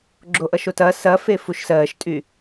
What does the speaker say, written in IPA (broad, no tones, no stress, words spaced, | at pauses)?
ɡ͡ǁoʔʌʃotɐ sɐ fefuʃsɜːʃtʼy